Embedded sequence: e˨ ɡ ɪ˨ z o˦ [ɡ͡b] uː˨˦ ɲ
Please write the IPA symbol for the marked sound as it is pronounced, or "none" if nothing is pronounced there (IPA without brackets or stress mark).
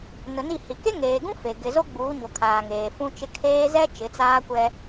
ɡ͡b